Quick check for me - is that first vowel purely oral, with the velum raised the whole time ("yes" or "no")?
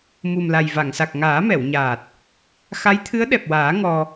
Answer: yes